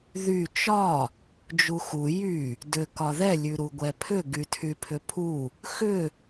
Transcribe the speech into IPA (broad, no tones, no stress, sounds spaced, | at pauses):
ð y t͡ʃ ɒ | d͡ʒ u x u j y | d ʏ k ɒ ð ɛ lʲ ʉ ɾ u ɡʷ ɛ pʰ ʏ ɡ y tʰ y pʰ ʏ pʰ u | x ʏ